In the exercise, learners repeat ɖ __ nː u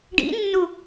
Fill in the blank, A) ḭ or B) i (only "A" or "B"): A